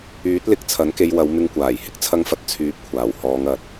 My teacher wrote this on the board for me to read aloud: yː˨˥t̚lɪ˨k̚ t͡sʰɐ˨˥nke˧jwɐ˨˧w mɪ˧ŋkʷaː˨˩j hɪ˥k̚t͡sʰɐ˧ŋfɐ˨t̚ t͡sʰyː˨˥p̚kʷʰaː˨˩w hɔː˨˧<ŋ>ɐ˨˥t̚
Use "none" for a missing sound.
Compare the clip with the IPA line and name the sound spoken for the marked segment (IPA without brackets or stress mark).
ŋ